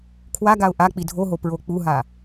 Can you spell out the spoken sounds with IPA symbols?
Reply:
kʰwaɡaʊ̯ ʔa k͡pidʱoɦo pɹok͡puɦa

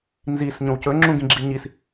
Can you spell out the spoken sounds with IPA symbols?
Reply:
nzis ɲõwcɵŋ͡ǁũ ɡĩɡ͡ǁiɲis

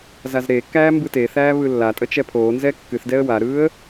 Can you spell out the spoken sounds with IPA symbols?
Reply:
zazɾekːæː mbɯteθæː βɯlːatʼə t͡ʃɛpʰoːnzɛ kːɨθdɛə̯ waɾɯːə̯

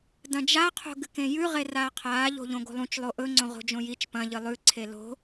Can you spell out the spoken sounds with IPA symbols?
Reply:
dɐ̃d͡ʒa qʰo̤ɡɨkẽjʉ ʁeraːqʰaː ʎo̤ʎõɡo̤lˠũt͡ʃ lˠoʔɵ ŋ͡ǀõʁo̤d͡ʒõjit͡ʃ pɐ̃ ʎɨlˠʉ ǀʰelo̤

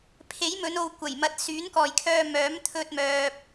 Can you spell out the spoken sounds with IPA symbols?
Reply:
pʰe˨˥jmɵ˨˧no˨w kʷɐ˨˩jmɐ˧t̚ syː˨˥nkɔː˨jkʰœː˧ mœː˨˥mt̪ʰɵ˧t̚mœː˨p̚

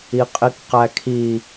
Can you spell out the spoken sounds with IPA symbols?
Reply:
iqʼikqækʰi

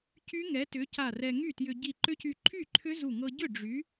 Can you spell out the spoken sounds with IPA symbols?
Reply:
cy˦˥ŋɛ˨˥tʏ˨˥ca˧˩ rɛ˧ŋy˥˩tjʏ˧ ɟi˧˩ǃʏ˦˥cy˧ ǃʰy˥˩ǃʰʏ˦˥zu˧˩ŋɤ˧ ɟʏ˥˩ ɖ͡ʐy˨˥

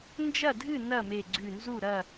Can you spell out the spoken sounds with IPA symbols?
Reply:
nd͡ʒɐ˥˨dʱɨ˥˨ nɐ˥˨me˧˩ɡ͡ǀʉ˧˩nzu˥˨ ɾɐ˥˨

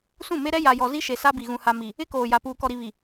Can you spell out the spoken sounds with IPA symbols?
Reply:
sũ˦˨me˦ɾɛ˦ ja˨jɔ˨ zi˦ʃe˨sa˦bi˨ ɣũ˨ha˨mi˨ | ɪ˦koː˨ja˨ puː˨kɔ˨ɾi˨βi˨

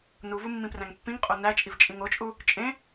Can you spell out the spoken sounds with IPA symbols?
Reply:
nuvu mːĩpræ̃ŋpːĩŋqʼo næt͡ʃʼiv t͡ʃʼĩŋot͡ʃʼu | t͡ʃʼẽ

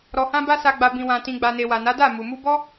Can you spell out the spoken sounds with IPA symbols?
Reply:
ɾɔ˨hã˧ba˧ sa˨ɡ͡ba˨ bĩ˨wã˨ tĩ˨ɡ͡ba˨ne˨ wa˨na˨˦ da˦˨ mu˨mu˧bɔ˦

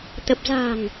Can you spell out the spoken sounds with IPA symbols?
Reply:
t̪ə˨˩p̚za̤˨˩ŋ

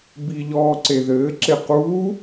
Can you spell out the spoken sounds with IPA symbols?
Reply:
biʎɔːǀe ðɘːǁe quː

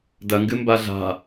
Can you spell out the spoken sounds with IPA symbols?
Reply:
dɐŋɡɨmba ɮa̤

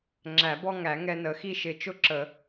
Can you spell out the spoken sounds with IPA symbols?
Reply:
ŋ͡ǁæ˨˩˦bɔ˦ŋæ˨˩˦ ŋɛ˦nə˨˩˦ xi˦ʃɪ˨˩˦ t͡ʃʊ˦ǁə˨˩˦

